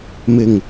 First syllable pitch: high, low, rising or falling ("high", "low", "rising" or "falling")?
low